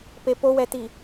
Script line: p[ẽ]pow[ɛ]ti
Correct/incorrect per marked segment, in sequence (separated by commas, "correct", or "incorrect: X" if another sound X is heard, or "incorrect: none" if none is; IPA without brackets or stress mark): incorrect: e, correct